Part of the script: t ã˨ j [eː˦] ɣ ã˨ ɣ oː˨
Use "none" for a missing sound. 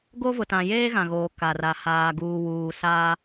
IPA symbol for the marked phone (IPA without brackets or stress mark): eː˦